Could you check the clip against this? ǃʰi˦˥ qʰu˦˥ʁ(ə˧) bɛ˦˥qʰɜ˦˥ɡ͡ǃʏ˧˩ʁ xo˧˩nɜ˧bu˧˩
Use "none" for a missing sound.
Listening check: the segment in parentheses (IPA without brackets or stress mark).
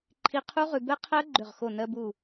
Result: ʉ˧